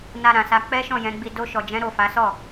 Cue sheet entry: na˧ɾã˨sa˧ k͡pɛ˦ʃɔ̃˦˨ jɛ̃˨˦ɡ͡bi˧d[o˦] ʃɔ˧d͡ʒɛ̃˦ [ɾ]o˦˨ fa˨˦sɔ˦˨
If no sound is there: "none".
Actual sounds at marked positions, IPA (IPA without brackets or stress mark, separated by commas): o˦, ɾ